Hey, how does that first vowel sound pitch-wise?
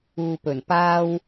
low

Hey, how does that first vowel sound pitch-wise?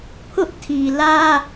high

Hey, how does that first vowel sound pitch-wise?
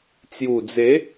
low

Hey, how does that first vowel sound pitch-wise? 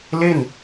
falling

